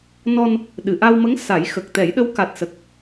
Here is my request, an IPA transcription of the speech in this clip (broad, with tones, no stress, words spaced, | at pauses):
nɔ˧n | ɗɨ˨˩˨ʔa˧wmə˧˥ŋ sa˨˩˦j xə˨˩k̚t̪ɛ˨˩˦jɗə˧˥w ka˨˩t̚sə˨˩k̚